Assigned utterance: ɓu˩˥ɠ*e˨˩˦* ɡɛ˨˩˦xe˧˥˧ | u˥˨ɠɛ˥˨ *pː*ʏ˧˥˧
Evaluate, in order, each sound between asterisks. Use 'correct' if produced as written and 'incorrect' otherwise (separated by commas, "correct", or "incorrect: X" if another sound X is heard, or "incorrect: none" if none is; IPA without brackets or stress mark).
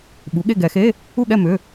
incorrect: e˥˨, incorrect: m